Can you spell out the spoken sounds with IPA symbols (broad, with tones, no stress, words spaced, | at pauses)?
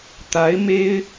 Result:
t̪a˧˥ɪ̯ me˥ɪ̯